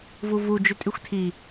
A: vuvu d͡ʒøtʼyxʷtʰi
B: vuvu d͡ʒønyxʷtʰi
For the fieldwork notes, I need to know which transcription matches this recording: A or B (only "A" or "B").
A